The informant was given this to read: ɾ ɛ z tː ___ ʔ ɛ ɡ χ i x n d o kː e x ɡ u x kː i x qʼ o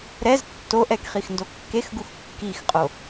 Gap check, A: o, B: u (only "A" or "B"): A